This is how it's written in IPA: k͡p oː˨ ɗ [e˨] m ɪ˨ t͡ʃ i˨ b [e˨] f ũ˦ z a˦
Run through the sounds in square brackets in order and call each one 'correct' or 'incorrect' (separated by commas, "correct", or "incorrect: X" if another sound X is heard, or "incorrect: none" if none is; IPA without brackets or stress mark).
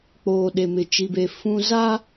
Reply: correct, correct